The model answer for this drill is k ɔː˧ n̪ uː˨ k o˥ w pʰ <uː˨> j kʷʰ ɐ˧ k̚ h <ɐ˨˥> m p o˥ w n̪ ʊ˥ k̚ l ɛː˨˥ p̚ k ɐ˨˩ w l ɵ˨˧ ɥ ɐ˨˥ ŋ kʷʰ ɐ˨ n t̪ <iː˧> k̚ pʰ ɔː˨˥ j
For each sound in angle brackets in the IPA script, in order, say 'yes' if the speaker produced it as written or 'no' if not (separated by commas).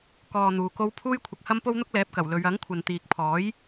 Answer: no, no, no